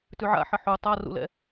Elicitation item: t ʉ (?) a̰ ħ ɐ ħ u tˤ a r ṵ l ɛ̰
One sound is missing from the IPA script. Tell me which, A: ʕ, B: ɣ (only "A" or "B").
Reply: A